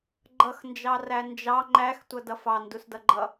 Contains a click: yes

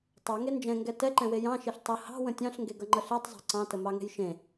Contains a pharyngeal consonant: no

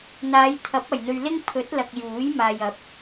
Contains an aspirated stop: yes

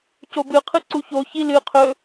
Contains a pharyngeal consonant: no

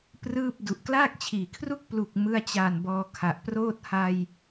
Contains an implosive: no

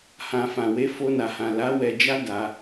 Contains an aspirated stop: no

